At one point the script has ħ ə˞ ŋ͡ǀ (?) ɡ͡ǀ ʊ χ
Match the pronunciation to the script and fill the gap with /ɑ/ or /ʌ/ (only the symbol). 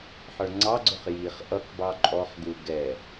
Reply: ɑ